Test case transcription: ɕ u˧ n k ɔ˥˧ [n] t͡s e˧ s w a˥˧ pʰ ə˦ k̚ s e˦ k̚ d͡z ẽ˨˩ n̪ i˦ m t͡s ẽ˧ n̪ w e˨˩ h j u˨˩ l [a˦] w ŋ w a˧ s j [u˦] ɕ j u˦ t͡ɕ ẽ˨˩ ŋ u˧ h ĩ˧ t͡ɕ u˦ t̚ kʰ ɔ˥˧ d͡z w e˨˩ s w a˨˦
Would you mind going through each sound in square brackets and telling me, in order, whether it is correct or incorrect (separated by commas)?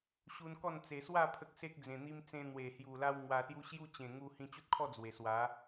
correct, correct, correct